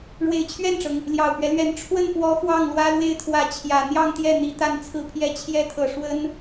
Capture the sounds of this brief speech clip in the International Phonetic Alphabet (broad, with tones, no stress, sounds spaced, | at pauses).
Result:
ɻ w e˨˩ ɪ̯ t͡ɕʰ ɥ ɛ˥˩ n ʈ͡ʂ ɤ˩ ŋ | l j ɑ˨˩ ʊ̯ p ɥ ɛ˦ l ɥ ɛ˧˥ n ʈ͡ʂʰ w ə˥˩ n p w ɔ˧˥ x w ɑ˥˩ ŋ l w ä˥ l w e˥˩ ɪ̯ t̪ʰ w ä˧˥ t͡ɕʰ j ä˨˩ n̪ j ɑ˥˧ ŋ t̪ j ɛ˥˩ n̪ i˧˥ t̪ a˥˩ n t͡sʰ ɹ̩˥ pʰ j ɛ˥ t͡ɕʰ j ɛ˧˥ t̪ʰ ɤ˨˩ ʂ w ə˥ n